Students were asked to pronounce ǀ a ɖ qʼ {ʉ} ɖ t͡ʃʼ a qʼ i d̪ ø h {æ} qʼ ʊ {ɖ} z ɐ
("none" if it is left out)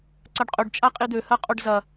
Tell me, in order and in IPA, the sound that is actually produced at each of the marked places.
ø, ɜ, ɖ

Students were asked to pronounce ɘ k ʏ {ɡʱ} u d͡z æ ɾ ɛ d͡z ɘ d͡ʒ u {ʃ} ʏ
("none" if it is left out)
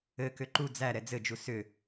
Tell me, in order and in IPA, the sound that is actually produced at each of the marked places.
ǃ, s

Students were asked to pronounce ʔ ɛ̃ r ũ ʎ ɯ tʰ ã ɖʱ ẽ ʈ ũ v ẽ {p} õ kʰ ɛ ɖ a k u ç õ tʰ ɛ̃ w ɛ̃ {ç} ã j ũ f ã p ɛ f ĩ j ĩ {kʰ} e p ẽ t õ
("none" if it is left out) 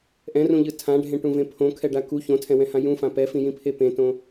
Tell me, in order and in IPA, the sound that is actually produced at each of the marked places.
pʰ, h, pʰ

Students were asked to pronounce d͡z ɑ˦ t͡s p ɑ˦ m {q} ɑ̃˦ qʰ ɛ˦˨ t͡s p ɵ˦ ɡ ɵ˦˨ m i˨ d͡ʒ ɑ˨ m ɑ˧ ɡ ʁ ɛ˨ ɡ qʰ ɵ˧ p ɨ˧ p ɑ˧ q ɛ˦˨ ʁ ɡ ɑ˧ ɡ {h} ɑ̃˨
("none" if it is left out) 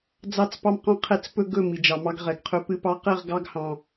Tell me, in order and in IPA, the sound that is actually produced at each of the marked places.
q, h

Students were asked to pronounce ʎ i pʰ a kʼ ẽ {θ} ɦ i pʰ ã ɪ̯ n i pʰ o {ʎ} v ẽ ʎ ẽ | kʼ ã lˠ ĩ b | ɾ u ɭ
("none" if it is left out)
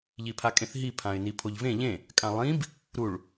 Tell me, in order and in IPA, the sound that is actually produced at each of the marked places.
θ, ʎ

